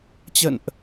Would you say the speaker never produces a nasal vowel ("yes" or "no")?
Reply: yes